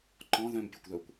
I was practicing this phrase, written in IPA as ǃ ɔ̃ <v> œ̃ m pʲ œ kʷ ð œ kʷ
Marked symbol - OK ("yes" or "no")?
no